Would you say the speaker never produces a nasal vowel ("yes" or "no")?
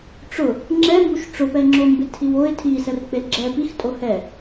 yes